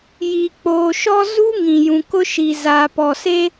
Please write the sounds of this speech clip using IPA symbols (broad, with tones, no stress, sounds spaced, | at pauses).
j i˨ k͡p oː˨ ʃ ɔ˦ z u˦ ŋ ĩ˨ j ũ˨ k ʊ˦ ʃ i˨ z a˨ p ɔ˨ s e˦